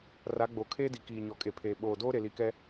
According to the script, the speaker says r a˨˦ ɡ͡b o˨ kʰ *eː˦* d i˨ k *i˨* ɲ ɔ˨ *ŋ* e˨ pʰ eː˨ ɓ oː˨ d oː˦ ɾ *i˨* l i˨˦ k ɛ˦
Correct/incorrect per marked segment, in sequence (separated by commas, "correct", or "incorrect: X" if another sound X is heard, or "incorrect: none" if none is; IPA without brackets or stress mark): correct, incorrect: iː˨, incorrect: kʼ, incorrect: e˨